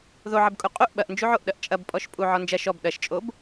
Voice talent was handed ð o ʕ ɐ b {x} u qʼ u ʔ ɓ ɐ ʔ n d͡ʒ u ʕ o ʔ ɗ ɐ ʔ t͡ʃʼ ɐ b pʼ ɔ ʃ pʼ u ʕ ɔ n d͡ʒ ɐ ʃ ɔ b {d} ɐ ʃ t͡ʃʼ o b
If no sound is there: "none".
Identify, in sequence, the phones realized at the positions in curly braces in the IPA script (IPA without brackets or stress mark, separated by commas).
kʼ, ɗ